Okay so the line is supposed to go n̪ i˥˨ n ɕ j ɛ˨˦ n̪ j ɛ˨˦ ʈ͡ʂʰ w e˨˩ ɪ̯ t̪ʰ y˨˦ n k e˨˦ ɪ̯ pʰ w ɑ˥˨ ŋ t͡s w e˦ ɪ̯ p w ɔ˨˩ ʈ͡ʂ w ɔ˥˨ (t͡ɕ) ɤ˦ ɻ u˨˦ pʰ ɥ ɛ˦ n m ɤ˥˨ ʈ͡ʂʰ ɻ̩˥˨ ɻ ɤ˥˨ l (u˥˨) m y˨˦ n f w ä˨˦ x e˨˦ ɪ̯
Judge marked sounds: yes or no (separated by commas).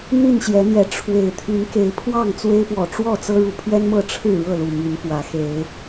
no, no